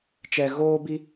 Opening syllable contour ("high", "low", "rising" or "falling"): low